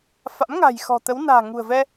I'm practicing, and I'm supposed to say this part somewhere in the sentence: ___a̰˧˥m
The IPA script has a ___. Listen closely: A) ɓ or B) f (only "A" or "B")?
B